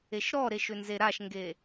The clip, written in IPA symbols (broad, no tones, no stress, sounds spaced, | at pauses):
e ʃ ɾ ɔ ɾ e ʃ ʏ n z e ɾ a ʃ ŋ ɡ e